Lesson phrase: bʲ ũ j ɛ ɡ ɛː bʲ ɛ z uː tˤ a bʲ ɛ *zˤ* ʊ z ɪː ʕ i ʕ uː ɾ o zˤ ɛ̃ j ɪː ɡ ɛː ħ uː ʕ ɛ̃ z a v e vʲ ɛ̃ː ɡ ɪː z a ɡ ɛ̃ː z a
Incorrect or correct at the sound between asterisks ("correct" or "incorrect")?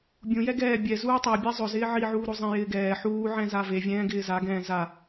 correct